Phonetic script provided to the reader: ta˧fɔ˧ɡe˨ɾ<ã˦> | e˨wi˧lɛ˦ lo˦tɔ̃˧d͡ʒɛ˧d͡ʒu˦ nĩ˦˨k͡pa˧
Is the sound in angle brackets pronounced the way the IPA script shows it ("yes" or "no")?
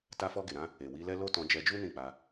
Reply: no